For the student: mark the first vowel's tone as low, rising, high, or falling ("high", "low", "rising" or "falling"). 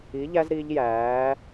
rising